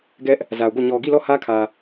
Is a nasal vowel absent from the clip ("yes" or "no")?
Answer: yes